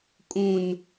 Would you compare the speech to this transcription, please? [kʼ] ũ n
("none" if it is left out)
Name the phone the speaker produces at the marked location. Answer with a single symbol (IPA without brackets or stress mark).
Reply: kʼ